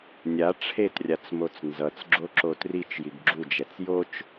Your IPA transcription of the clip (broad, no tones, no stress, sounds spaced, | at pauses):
nʲ a ʈ͡ʂʰ e t rʲ a t͡s m o t͡s n z ʌ t͡s ɡ͡ǁ o ǁ o t r i t͡ʃ j i ɡ ɡ͡ǁ u d͡ʒ ɛ t͡s j o t͡ʃ